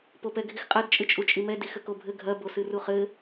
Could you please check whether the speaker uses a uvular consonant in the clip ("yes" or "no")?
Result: yes